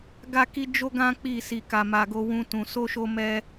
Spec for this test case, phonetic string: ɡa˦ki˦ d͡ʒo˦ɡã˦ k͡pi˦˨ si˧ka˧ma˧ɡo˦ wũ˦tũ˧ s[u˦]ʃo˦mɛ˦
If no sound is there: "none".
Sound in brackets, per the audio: o˦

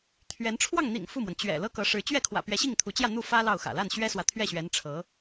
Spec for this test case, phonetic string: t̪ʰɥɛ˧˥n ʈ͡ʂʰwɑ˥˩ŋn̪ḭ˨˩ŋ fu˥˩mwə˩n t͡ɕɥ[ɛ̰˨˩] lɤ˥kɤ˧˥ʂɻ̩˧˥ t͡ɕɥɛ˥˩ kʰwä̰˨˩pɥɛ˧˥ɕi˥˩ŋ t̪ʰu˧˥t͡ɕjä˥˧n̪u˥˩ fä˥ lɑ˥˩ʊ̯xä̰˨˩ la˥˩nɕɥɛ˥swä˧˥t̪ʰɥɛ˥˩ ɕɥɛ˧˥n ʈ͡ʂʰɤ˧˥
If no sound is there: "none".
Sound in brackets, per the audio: ɛ̰˨˩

